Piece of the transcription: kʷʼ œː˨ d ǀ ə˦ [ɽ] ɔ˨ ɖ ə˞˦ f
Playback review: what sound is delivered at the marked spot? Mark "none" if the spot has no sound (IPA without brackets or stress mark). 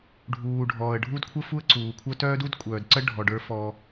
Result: ɖʱ